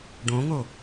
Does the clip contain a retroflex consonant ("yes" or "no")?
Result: yes